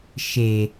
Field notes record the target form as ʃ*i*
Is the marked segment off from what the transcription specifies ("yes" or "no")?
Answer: yes